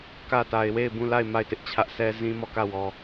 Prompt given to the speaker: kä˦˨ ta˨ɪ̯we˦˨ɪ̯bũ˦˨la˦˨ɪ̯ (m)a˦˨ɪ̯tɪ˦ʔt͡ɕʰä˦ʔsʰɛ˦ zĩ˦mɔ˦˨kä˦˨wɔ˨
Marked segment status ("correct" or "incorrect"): correct